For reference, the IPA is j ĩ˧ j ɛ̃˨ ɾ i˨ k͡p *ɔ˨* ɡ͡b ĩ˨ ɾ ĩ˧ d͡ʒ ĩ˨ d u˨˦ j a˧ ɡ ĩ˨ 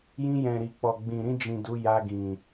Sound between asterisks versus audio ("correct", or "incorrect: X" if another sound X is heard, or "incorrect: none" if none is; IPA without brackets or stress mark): correct